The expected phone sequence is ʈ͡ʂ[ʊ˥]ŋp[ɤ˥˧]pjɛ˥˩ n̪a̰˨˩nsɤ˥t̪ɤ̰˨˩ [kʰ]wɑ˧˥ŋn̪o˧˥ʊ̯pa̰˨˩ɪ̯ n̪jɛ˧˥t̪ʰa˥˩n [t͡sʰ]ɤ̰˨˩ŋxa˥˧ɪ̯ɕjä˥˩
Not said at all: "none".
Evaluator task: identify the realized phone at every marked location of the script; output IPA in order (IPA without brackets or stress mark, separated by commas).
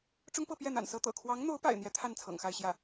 ʊ˥, ɤ˥˧, kʰ, t͡sʰ